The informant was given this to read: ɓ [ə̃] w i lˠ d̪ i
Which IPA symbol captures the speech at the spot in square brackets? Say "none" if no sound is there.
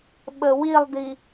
ə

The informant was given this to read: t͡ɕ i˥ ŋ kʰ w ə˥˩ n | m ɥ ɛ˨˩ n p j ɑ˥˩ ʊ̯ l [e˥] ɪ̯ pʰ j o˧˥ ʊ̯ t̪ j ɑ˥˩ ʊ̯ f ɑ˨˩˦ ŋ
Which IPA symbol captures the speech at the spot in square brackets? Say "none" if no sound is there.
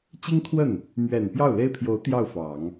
e˥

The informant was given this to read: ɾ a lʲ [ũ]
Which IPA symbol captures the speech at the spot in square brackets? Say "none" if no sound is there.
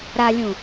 ũ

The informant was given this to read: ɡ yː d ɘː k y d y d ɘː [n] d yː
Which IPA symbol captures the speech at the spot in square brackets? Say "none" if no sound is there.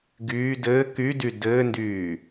n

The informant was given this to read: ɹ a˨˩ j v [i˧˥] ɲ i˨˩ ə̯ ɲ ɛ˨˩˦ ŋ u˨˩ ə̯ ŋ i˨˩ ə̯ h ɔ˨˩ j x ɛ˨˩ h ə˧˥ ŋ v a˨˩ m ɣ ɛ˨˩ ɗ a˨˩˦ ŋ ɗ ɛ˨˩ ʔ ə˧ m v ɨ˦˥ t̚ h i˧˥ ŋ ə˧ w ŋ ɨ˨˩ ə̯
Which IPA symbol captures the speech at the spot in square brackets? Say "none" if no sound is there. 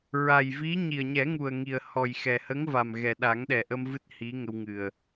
i˧˥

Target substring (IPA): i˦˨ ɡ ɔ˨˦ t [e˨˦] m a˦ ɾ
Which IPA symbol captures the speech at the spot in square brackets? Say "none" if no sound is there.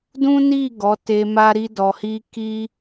e˧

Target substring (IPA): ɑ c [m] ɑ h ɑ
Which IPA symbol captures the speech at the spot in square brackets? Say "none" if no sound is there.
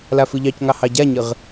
ŋ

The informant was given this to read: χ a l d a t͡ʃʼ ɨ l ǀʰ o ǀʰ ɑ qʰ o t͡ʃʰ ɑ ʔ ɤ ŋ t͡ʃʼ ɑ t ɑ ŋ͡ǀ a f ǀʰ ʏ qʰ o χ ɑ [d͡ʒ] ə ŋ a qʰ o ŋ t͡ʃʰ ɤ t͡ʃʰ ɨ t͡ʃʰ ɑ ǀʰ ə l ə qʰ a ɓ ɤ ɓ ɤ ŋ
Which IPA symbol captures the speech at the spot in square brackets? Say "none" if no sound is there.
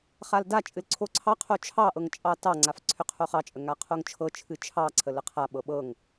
t͡ʃʼ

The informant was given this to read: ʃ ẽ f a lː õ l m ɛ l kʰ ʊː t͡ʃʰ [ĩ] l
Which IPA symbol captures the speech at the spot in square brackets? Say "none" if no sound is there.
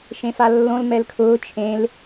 ẽ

